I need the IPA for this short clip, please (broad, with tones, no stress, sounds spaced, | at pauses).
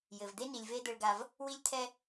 j ɘ˨ v d̪ e˦ n i˨ lʲ v e˦ d̪ ɘ˦ ɭ ɡ a˦ v | w i˦ lʲ t̪ʰ ɛ˦